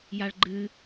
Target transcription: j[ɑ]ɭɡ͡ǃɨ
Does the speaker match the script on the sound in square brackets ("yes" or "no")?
no